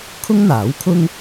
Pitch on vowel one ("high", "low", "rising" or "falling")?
high